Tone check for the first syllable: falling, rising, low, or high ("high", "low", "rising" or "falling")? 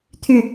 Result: falling